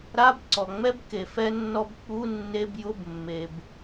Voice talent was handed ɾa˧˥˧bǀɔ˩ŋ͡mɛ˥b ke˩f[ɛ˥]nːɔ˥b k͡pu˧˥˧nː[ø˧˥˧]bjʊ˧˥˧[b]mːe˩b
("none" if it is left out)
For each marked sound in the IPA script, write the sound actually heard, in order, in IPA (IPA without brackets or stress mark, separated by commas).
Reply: ɛ˥, e˧˥˧, b